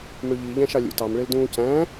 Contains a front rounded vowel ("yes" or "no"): yes